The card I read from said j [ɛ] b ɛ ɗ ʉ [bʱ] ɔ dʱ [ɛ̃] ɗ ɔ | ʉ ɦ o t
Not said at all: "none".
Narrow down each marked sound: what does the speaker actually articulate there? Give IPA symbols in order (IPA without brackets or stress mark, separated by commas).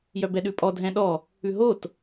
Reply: œ, pʼ, ɛ̃